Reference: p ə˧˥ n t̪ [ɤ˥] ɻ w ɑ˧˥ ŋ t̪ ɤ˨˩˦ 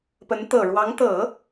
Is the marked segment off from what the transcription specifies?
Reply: yes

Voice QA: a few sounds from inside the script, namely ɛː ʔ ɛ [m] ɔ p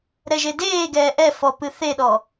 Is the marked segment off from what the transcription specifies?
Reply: yes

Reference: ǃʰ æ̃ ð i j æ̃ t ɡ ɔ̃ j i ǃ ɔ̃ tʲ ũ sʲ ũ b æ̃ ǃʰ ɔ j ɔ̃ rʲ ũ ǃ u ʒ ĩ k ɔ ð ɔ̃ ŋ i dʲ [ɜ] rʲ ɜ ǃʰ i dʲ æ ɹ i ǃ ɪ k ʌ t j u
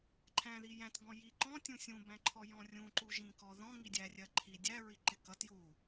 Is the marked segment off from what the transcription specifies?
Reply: yes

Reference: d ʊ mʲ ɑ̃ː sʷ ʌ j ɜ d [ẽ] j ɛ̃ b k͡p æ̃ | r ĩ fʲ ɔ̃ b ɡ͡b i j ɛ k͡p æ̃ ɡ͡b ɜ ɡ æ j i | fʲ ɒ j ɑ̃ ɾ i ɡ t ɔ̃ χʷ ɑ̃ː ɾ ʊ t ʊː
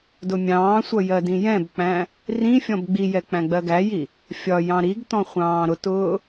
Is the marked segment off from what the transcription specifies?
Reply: yes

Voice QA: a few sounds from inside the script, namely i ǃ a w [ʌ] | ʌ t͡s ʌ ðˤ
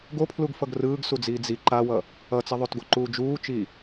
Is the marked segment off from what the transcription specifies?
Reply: no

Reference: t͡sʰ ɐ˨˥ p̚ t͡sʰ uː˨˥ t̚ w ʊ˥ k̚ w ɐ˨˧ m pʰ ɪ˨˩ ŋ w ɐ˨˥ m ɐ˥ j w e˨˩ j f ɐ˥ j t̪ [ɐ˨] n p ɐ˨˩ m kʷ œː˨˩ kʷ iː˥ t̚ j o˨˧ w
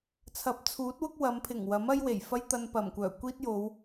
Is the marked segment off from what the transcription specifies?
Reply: yes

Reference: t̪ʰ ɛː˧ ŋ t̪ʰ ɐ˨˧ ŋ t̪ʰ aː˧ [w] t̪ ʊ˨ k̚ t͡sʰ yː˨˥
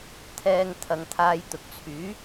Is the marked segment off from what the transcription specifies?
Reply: yes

